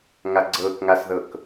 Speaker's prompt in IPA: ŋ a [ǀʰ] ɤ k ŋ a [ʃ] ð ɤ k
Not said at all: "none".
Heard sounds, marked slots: ɡ͡ǀ, s

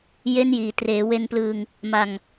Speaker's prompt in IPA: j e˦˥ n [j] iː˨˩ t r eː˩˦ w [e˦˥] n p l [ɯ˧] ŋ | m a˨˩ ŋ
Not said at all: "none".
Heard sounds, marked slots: j, e˧, ɯː˧

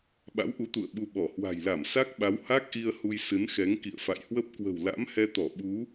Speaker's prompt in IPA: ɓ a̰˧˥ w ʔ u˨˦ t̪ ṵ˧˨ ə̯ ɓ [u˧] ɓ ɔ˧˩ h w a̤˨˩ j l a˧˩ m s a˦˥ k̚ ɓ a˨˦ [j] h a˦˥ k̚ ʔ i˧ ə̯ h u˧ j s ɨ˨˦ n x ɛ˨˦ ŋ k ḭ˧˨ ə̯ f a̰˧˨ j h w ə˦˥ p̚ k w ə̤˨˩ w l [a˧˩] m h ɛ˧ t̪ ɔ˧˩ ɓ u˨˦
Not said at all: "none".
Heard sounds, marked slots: u˧, w, a̰˧˥

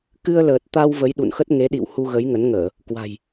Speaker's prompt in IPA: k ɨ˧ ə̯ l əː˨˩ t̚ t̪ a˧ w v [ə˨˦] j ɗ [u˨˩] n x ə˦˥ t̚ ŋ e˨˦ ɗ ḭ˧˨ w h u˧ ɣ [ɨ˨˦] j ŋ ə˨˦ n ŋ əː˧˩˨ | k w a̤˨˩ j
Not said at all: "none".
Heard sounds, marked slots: ə˨˦, ṵ˧˨, ə˨˦

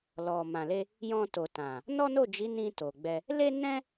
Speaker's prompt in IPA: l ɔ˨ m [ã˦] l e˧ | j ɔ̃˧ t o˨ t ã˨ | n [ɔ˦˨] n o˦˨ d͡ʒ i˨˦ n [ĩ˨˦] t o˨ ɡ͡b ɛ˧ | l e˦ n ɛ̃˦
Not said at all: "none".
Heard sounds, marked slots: ã˨, ɔ˦, ĩ˧

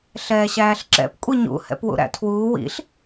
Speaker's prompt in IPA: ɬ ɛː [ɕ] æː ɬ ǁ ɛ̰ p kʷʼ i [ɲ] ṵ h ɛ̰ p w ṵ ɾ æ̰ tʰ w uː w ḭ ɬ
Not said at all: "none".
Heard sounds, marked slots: ɕ, ɲ

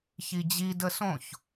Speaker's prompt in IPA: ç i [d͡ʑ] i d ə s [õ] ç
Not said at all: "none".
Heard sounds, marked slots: d͡ʑ, õ

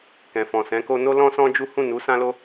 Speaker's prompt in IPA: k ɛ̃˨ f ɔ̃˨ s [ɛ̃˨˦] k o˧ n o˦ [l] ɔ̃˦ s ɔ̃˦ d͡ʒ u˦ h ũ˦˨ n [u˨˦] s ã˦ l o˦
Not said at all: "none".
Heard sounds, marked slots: ɛ̃˨˦, l, u˨˦

